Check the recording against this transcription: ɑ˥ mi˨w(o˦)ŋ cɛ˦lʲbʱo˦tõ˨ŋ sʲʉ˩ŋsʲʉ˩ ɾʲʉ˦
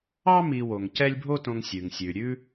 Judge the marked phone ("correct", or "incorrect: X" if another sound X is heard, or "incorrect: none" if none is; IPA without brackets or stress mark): incorrect: o˩